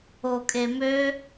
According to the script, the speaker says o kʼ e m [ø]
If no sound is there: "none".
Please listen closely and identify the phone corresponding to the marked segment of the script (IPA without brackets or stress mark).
ø